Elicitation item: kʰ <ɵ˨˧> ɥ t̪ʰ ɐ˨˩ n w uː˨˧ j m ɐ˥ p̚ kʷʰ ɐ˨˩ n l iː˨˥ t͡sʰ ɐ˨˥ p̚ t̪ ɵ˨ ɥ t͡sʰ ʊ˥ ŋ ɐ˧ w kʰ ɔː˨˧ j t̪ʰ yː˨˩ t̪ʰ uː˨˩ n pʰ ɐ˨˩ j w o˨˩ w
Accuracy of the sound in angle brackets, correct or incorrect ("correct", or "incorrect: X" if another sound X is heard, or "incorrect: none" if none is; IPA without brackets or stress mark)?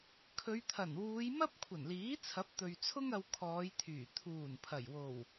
correct